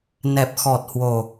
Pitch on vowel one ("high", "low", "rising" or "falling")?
low